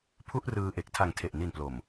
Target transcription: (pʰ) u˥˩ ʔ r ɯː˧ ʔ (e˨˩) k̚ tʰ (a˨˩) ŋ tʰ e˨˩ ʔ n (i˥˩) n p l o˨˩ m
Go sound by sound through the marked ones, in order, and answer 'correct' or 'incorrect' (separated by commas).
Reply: correct, correct, correct, incorrect